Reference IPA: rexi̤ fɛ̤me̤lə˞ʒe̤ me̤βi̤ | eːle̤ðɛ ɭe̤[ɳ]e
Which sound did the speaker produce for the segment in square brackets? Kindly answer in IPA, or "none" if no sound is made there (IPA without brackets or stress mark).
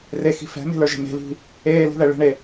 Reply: ɳ